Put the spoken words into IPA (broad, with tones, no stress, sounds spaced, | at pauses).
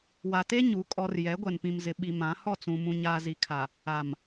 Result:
w a˨ t e˦ ɲ u˨˦ kʼ ɔ˨ r j ɛ˨˦ ɡʷ ɛ˨ n p ĩ˨ m z ɪ˨ ɓ i˨ m ã˨˦ h ɔ˦˨ t͡s ũ˨ m ũ˨ ɲ aː˨ z i˨ kʰ a˨ | a˨ m